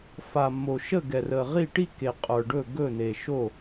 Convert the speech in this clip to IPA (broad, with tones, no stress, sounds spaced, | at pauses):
f a˨ mː o˨ ʃ ə˦˨ ɡ ɛ˨ r ə˨ ʁ i˦˨ ʈ i˦˨ k e˨ qʼ ə˞˨ ɖ ɵ˦˨ ɡ ɵ˦˨ n e˨ ʃ o˦˨